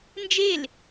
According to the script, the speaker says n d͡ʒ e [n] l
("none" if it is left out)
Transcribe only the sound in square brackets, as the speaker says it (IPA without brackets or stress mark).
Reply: none